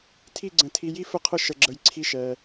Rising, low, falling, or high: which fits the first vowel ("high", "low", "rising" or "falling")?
falling